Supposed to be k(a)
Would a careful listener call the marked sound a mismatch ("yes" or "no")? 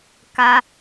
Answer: no